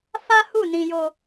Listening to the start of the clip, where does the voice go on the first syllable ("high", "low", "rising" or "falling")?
high